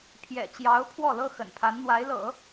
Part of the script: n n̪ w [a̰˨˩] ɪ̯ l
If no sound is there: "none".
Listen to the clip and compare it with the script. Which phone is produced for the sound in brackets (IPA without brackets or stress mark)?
a˧˥